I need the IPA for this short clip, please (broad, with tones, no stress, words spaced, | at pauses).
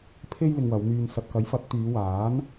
pʰe˥j lɪ˧ŋwɐ˨˧wn̪yː˧n sɐ˨t̚kɐ˨˥jfɐ˨˥t̚ t̪yː˨˧waː˨˥n